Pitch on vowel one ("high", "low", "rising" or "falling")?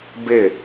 falling